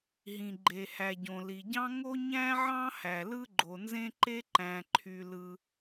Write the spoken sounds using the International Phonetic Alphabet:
ɦĩ˩ɡ͡ǃe˩hæ˩ɟõ˩ li˩ɟɑ̃˥ ŋo˥ɲæ̃˥ʕɑ̃˥hæ˩ lɯ˥ɡ͡ǃo˩nzẽ˥ǃe˥ ǃæ̃˩ǃʰy˩lɯ˩

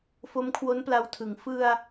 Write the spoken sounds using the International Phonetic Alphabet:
fo˦˥mkʰwo˦˥npla˧wtʰɯ˩˦ŋ fɯ˧a̯

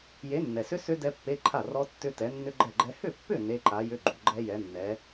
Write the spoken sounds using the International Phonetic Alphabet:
je˨˥nːɛ˨sʏ˦˥ sʏ˦˥ dɛ˦˥pːe˧˥˧ ǃʰa˥˩rɔ˦˥ tːʏ˦˥ tɛ˨˥nːʏ˦˥ɡ͡ǃɛ˥˩ɡ͡ǃɛ˦˥ hʏ˥˩pːʏ˥˩ ne˧˥˧ǃa˨˥jʏ˧˥˧ ɡ͡ǃu˨ɡ͡ǃɛ˦˥jɛ˨˥nːɛ˨˥

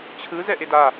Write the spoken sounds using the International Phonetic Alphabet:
t͡ɕʰɯ zɛʔeda

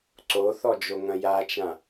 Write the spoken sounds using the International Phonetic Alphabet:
ǀoθɔd͡ʒoŋɐ̃ jat͡ʃã

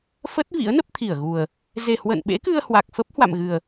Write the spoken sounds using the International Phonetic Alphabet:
fə˦˥t̚ vḭ˧˥ə̯nə˦˥p̚t̪ʰi˧˩ə̯ɣu˨˩ə̯ | ze˨˩hwə̰˧˨n ɓḛ˧˥kɨ˧ə̯ hwa˨˩k̚fə˦˥p̚ hwa̰˧˨mɣɨ˨˩ə̯

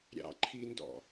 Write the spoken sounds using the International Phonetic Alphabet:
ɾʲɑ̰ǃʰindɔ̰

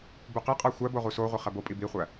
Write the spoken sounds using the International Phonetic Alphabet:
buqiqʼæ xʷæbo ʁusoʁʷi χæbopʼi biχʷæ

